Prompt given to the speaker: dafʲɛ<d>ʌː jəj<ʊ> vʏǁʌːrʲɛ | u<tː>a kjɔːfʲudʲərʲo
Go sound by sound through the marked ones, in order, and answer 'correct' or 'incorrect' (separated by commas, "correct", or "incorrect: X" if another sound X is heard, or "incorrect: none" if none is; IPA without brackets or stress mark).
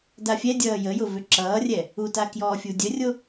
incorrect: dʲ, correct, incorrect: t